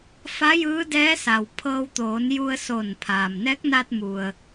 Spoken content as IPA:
f a˧˥ j ɯː˧˥ d ɛː˧˥ s a˩ w pʰ ɤː˧ w t̪ oː˩˧ n j u˧ ə̯ s oː˧˩ n pʰ aː˩ m n ɛː˧˥ k̚ n aː˧ t̚ m u˩ ə̯

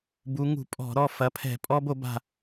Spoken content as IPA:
b u˩˧ ŋ ṳ˧˩˧ pʼ ɔ̤˧˩˧ ɾ ɔ˦˨ f ɐ˩˧˩ pʰ ɛ̤˧˩˧ pʼ ɔ˦ b o˩˥ b a̤˦˨

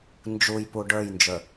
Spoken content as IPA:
n d͡ʒ u j p u ɖ ə˞ j n d͡ʒ ə˞

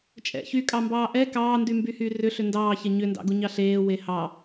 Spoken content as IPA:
t͡ʃʼ ɛ̰ ç y kʼ ɑ m b ɑː ʔ ɛ k ɑː n d y m b y h y r ʏ ɬ ʏ n d ɑː ç ɛ ɲ ʏ n d ɑ̰ ɡ u ɲ ɑ ɬ eː w e h ɑ

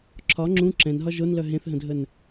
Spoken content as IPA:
ǁʰ ɒ ŋ͡ǁ ũ ǁ ɛ̃ n ɦ ɒ ʒ o n l œ ɦ ẽ θ ɦ ə̃ dʱ ə n

